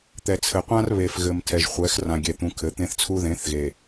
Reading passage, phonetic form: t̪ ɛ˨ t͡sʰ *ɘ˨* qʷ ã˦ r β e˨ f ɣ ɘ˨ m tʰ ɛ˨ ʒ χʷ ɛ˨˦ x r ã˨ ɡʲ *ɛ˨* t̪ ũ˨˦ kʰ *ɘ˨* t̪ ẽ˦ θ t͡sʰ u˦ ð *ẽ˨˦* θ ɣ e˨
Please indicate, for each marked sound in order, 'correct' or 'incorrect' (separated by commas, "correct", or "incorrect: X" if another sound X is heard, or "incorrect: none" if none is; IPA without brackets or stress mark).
correct, correct, incorrect: ɘ˨˦, correct